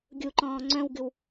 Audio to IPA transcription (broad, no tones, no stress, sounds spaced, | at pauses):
ɡʲ u ǃ ɔ̃ː ŋ͡ǀ œ̃ w ɡ ɨ w